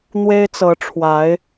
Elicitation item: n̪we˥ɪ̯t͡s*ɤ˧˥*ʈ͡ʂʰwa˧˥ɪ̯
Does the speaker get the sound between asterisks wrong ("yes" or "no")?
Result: no